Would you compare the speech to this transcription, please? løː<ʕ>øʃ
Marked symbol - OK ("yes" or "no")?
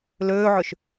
yes